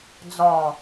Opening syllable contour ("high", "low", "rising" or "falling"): low